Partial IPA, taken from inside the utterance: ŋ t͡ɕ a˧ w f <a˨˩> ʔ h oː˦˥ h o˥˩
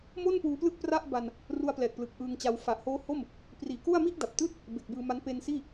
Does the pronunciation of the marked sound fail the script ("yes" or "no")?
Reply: no